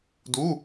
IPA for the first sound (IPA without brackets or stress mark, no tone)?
d